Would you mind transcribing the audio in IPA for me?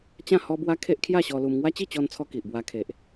t͡ɕ ã˥˧ h ɔ˦ b w a˦ kʰ e˦ ʔ kʰ j a˥˧ ɕ ɔ˧ l u˧ m ŋ w a˦ t͡ɕ i˥˧ t͡ɕ ɔ˧ n t͡sʰ ɔ˧ k i˨ ʔ b w a˧ kʰ e˨ ʔ

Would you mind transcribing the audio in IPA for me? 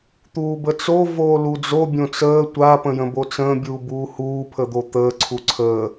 t̪ uː b ə t͡s o v oː l u d͡z o bʲ õ t͡s əː tʷ a p ə̃ j ə̃ b o t͡s ə̃ː bʲ uː b uː h uː pʰ ə d̪ o t̪ əː ǀʰ u ǀʰ əː

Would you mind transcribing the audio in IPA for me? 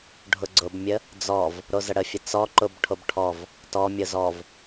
ɖʱ ʊ ɡ͡ǀ ʊ b mʲ ə | d͡z ɔ v | ɾ o z ə ɽ ə fʲ ə t͡s ɔ ǃ ʊ b ʈʰ o b ʈʰ ɔ v | t ɔ mʲ ʊ z ɔ v

